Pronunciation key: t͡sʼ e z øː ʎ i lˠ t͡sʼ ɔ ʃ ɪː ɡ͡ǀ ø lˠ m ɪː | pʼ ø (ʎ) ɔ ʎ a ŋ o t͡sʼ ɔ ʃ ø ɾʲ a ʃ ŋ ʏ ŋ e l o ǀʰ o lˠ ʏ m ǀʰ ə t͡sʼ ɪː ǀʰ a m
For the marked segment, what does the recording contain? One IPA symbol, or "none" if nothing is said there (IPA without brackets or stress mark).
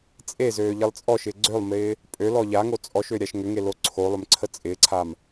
l